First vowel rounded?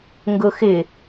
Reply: yes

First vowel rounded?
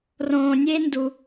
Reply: yes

